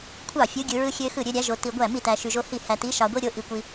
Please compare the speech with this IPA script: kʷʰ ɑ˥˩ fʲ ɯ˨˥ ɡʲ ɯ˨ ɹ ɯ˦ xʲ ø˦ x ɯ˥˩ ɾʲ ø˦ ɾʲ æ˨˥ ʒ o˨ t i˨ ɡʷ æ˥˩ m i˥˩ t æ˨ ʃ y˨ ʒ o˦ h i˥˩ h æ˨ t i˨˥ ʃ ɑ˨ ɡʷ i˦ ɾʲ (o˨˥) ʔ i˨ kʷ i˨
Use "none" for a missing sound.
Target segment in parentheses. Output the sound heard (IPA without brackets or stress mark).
o˨˥